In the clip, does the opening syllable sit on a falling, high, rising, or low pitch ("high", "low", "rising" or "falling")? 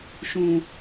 low